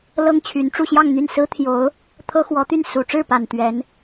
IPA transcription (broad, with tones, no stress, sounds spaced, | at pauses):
l ɤ˥ ŋ t͡ɕʰ y˧˥ n ʈ͡ʂ u˥˧ ɕ j ɑ˥˧ ŋ n̪ y˥˩ n s ɹ̩˥ t̪ʰ j o˧˥ ʊ̯ | t̪ʰ ɤ˥ x w ɔ˧˥ t̪ y˥˩ n s u˨˩ ʈ͡ʂ ɻ̩˥˩ p a˨˩ n t̪ ɥ ɛ˧˥ n